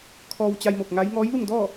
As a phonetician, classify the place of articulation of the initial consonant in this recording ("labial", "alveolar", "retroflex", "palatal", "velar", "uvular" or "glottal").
velar